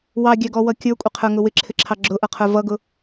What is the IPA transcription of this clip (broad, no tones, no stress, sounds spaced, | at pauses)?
w ɑ ɡʲ æ ɡ ɔ w ʌ kʲ ə˞ kʷʼ ɪ qʰ ə˞ ŋ ʊ w ɪ ǁʰ ɪ ǁʰ ɑ ɡ͡ǁ ʊ ʔ ʌ qʰ ə˞ v ʌ ɡ ʊ